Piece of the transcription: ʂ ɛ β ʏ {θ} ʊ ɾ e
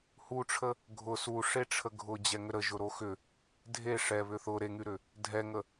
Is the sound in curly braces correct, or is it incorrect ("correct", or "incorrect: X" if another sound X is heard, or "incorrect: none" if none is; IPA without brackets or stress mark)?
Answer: correct